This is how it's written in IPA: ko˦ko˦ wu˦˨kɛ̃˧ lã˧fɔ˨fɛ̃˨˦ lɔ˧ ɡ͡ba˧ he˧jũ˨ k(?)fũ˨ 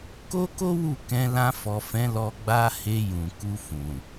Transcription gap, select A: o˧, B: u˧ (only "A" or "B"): B